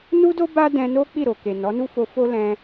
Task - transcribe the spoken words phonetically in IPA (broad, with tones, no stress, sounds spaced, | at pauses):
n u˦ d o˦ b a˦ d ɛ̃˧ n o˦ k͡p i˦˨ ɾ o˨ k e˨ n ɔ˨˦ n u˦ f o˧ f o˦ l ɛ̃˧